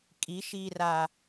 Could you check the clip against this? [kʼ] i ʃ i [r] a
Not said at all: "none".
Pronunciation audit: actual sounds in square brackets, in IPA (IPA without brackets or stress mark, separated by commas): kʼ, r